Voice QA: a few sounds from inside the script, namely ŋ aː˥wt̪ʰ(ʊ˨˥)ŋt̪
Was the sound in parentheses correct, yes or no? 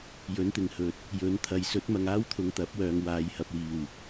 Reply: no